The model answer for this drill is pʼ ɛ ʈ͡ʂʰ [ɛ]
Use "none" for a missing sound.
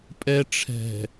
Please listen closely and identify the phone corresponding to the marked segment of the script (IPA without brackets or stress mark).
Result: ɛ̤